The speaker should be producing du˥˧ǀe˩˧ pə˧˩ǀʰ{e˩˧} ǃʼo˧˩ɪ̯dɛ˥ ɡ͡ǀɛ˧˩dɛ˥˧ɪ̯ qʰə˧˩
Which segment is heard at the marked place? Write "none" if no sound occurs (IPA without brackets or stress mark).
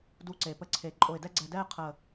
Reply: e˩˧